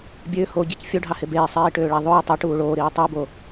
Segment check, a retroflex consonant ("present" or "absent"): present